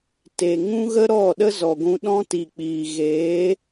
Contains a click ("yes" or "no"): no